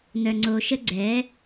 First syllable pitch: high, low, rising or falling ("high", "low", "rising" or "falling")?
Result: low